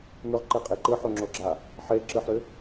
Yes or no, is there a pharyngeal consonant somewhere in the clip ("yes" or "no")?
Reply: yes